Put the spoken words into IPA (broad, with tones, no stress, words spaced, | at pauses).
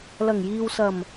lɐ˨˩ŋjiː˨wsɐ˨˩m